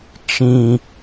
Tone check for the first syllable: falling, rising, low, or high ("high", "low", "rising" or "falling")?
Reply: high